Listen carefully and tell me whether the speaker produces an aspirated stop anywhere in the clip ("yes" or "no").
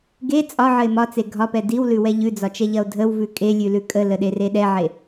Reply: no